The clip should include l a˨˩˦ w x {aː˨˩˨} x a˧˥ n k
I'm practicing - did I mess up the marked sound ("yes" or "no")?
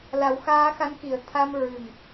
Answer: yes